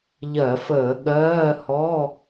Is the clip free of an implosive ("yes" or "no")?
no